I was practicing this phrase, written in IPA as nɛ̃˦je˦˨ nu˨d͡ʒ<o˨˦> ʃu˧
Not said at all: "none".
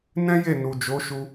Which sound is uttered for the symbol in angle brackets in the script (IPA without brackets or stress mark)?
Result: o˨˦